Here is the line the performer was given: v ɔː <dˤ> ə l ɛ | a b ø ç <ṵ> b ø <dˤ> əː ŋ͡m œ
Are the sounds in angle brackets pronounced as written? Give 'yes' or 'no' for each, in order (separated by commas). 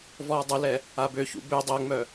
yes, yes, yes